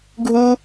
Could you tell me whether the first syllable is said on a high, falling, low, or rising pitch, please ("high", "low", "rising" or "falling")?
high